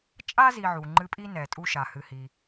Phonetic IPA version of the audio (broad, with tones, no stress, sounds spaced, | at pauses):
t͡ʃʼ a˥ z i˨ ʕ u˩ ŋ͡ǃ ɨ˦ pʼ i˥ n ɛ˩ tʼ u˦ ʃ a˩ h ɨ˨ h i˩